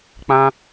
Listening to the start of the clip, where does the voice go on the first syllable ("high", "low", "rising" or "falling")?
high